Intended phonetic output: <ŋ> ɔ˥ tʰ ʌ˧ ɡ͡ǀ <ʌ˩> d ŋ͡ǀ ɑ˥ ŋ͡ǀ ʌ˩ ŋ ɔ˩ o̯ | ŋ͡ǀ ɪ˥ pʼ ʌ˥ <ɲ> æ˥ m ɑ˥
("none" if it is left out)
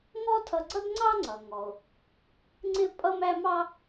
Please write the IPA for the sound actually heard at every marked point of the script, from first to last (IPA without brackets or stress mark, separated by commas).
ŋ, ʌ˥, m